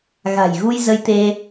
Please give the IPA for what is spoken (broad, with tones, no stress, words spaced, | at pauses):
ɣa̤˨˩j ɣu˧j zə˧jt̪e˧